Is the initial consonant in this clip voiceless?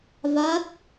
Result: no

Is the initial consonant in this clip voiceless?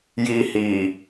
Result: no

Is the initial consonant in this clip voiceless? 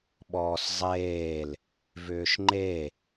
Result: no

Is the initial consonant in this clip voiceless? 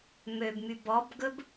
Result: no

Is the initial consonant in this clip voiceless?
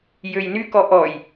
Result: no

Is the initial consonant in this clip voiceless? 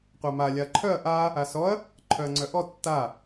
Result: yes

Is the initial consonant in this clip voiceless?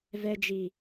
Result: no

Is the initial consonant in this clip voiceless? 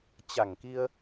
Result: yes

